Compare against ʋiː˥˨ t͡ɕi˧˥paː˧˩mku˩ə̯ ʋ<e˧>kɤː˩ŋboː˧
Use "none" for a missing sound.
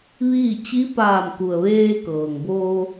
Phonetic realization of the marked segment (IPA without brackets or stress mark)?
eː˧